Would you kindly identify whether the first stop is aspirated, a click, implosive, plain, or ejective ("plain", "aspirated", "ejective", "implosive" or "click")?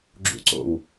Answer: click